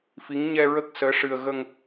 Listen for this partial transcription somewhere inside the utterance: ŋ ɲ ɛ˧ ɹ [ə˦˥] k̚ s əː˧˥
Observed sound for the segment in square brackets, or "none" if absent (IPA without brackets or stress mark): ə˦˥